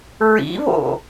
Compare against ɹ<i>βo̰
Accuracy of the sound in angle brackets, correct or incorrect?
incorrect